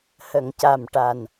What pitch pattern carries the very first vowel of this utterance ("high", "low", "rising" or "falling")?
low